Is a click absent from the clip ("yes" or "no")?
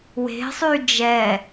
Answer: yes